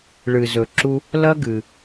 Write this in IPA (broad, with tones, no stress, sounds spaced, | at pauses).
ɭ ɨ˧ z ɵ˧ ǁ u˦ | l ɐ˦ ɡ ɨ˧